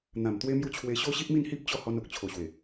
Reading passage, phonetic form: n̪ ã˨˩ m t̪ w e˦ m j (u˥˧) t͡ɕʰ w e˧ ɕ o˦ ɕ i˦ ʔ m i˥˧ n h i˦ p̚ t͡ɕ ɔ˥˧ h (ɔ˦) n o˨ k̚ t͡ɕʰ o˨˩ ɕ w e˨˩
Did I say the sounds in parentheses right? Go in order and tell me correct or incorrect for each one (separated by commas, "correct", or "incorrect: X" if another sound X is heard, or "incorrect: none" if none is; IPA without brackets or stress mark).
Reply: correct, incorrect: ɔ˧